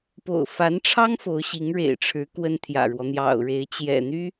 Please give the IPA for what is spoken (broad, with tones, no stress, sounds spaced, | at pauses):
p o̰˨˩ ʊ̯ f a˧˥ n ʈ͡ʂʰ ɑ˥ ŋ f o˧˥ ʊ̯ ɕ i˧˥ ŋ ɻ ḛ˨˩ ɪ̯ ʈ͡ʂʰ ɻ̩˧˥ k w ə˥ n t̪ʰ j ä̰˨˩ ɻ w ɔ˦ n̪ j ɑ̰˨˩ ʊ̯ ɻ e˧˥ ɪ̯ t͡ɕ j ɛ̰˨˩ n̪ y˥